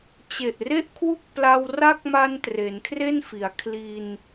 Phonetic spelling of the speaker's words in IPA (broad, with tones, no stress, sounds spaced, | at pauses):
t͡ɕ e˨˩ ʔ r e˥˩ ʔ kʰ w u˥˩ k̚ p l a˧ w r a˦˥ k̚ m a˧ n t r e˩˦ n kʰ r e˥˩ n f i˩˦ a̯ kʰ l i˧ n